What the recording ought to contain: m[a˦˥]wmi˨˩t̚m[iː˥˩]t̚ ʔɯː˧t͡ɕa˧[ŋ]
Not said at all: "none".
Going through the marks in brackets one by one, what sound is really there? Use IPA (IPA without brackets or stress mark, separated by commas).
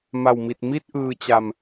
a˨˩, i˥˩, m